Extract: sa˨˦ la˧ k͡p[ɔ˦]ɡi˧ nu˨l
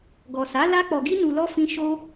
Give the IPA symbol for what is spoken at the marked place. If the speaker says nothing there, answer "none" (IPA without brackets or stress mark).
ɔ˨